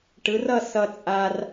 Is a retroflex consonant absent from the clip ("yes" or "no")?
no